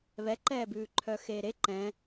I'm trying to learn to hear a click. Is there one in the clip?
yes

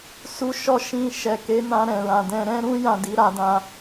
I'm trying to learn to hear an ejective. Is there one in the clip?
no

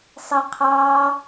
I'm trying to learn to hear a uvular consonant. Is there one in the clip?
yes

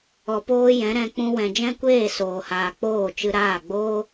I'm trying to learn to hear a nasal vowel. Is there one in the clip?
yes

